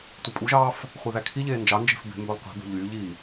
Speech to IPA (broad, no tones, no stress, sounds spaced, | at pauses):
tʷ e pʼ u ʒ ɑː f | χʷ i ð æ kʰ i ʎ eː n d͡ʒ ɑ n d͡ʒ e̤ f b e̤ m b ø lˠ qʷ i̤ b o̤ ʎ yː ʎ i